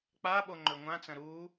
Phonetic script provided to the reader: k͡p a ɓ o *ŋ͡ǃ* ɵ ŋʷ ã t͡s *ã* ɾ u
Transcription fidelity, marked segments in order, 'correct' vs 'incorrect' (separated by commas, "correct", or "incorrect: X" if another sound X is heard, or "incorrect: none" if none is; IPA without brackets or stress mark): correct, incorrect: ɐ̃